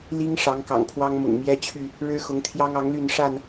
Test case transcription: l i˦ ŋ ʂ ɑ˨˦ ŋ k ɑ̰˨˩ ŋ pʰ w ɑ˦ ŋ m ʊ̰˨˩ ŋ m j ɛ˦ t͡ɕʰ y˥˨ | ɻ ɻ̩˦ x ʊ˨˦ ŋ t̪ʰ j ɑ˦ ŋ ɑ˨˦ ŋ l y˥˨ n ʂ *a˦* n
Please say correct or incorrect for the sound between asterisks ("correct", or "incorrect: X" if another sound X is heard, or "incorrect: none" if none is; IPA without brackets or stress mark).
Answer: incorrect: a˥˨